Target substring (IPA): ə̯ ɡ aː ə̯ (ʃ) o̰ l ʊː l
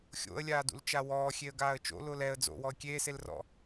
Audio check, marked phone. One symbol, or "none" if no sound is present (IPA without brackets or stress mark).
t͡ʃ